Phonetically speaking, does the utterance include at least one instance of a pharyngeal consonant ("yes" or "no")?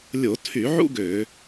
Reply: yes